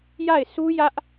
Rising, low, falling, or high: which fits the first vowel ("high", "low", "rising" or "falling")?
falling